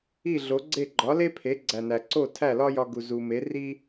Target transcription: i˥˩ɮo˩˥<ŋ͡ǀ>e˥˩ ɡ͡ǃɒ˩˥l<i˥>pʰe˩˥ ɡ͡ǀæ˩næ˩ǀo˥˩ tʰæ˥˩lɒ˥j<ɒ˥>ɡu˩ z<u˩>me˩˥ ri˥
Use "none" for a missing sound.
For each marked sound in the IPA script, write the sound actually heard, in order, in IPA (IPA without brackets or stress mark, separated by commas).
ɡ͡ǀ, e˥, ɒ˧, u˩